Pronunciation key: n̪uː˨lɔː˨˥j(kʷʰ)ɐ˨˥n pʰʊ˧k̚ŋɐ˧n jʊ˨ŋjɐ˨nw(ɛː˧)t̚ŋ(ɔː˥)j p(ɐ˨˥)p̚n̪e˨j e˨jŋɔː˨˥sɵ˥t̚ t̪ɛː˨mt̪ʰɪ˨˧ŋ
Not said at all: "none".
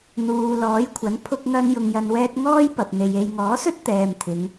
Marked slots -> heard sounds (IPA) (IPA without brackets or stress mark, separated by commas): kʷʰ, ɛː˧, ɔː˥, ɐ˨